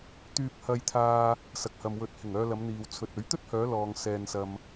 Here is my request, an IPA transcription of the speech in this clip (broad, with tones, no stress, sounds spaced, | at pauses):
t̪ yː˧ p̚ h ɐ˧ j t̪ʰ aː˧ | s ɐ˨ k̚ h ɐ˨ m w ɵ˨˥ t̚ h ɪ˨˩ ŋ œː˧ l ɐ˨˧ m n̪ iː˨ w t͡sʰ ɵ˨ t̚ ɵ˨˥ ɥ t̪ ɵ˥ t̚ h œː˨˧ l ɔː˨ ŋ s ɛː˨ n s ɐ˨ m